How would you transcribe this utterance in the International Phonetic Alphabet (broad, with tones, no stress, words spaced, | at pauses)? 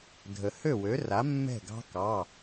dʱə˩ hø˥˩wø˩˥ra˩˥ mːɛ̤˥˩ɡɑ̤˦˥ kɑ˩˧˩